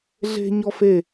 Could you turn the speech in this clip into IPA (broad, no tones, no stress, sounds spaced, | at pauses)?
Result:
ɮ e̤ ɲ ɔ f e